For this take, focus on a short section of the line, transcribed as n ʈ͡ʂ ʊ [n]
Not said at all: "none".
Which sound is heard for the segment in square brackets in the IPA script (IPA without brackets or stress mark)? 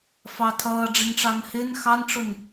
n